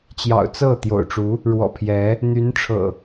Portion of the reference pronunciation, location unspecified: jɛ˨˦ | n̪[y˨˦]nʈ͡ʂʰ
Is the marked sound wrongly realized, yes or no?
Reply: no